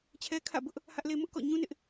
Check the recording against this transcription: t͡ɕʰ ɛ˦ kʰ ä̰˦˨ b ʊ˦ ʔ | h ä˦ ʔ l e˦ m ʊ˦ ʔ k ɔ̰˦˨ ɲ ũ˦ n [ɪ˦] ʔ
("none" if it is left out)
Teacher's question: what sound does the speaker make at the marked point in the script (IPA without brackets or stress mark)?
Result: ɪ˦